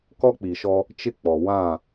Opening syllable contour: high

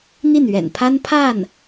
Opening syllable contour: falling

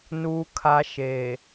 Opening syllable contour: low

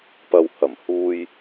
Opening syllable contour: low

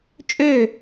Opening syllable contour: falling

